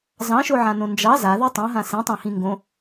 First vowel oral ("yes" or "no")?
no